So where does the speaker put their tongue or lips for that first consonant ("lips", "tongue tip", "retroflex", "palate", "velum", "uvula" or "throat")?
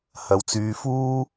throat